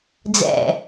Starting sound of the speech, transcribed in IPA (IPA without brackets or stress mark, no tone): d͡z